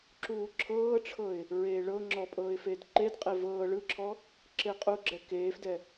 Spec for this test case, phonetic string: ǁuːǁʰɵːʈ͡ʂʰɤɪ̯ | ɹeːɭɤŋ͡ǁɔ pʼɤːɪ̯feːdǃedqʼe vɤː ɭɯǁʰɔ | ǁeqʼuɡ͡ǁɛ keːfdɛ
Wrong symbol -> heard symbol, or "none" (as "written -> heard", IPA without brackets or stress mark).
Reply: ɵː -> ɤː